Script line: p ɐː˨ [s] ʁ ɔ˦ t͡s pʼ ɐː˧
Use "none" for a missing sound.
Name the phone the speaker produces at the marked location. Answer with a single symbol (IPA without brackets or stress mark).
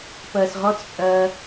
s